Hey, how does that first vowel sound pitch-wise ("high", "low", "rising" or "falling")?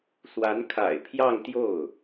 rising